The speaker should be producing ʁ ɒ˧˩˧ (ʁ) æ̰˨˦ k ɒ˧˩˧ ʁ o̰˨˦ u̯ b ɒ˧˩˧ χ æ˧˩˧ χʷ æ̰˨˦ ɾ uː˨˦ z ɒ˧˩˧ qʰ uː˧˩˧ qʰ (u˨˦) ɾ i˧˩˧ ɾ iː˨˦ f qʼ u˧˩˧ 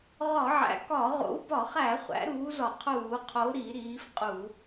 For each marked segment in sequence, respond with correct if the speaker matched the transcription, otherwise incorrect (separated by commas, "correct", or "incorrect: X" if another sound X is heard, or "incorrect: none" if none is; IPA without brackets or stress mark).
incorrect: ʕ, incorrect: o˨˦